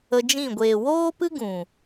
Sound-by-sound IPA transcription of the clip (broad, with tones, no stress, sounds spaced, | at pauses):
ə˧ d͡ʒ ĩ˦˨ ɡʷ eː˨ w oː˦ p ɨ˦ ɡ ũ˨